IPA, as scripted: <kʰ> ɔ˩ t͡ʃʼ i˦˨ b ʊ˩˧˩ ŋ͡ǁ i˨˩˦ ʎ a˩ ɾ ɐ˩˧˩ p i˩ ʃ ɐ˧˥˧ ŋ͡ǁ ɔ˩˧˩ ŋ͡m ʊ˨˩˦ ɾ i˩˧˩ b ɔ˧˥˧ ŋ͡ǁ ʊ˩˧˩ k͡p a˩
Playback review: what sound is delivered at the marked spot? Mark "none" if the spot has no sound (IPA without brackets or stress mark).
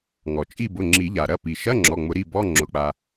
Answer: ŋ